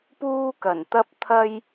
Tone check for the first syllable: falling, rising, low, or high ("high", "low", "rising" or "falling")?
high